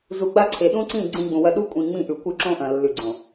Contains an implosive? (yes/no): yes